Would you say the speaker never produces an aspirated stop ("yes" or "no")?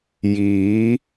yes